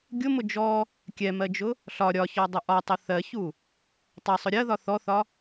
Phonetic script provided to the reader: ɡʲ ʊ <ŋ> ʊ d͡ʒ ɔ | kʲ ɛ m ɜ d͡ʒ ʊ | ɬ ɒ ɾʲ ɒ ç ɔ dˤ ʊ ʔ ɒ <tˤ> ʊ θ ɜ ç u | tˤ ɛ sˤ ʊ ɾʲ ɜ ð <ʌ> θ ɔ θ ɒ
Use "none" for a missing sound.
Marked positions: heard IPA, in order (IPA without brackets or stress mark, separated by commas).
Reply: m, tˤ, ɒ